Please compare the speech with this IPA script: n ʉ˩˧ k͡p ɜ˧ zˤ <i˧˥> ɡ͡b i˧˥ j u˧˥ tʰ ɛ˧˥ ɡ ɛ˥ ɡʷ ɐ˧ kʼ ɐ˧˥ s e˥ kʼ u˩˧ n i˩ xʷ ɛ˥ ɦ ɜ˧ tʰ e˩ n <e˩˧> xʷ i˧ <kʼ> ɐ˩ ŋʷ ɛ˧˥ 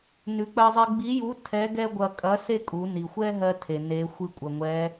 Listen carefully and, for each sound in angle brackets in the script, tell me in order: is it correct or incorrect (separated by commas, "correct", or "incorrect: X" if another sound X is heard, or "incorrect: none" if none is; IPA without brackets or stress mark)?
incorrect: i˧, correct, incorrect: kʷʼ